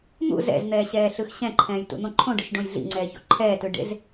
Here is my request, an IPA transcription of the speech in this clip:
n̪ ṵ z ɛ̰ z n̪ ɛː ɕ ɛː ɬ ɯ x ɕ ɛ̃ ǃʰ ɛ̃ː j t ṵ n̪ õ ǃʰ õ ɖ ɯ ʃ ɖ õ j ɮ ḭ ŋ͡ǀ ɛː ç o̰ ǃʰ ɛː t ɯ ɖ ḛ z

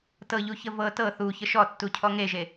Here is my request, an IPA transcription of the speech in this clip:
t ɤ ʎ u ç ə v ɤ t ɤ θ u ç ə ʃ ɔ tː u cʰ ɔ ŋ e ʒ e

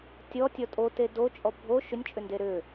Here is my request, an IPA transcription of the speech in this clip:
tʲ ɔ tʲ ɔ tʼ o t e d o t͡ʃʼ ɔ bʱ o ʃ ʏ nʲ t͡ʃʼ ʏ n d e ɾ ʏ

